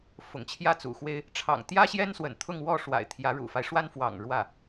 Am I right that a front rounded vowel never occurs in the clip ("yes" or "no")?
yes